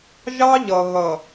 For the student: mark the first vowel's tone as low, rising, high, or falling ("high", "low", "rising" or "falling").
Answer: high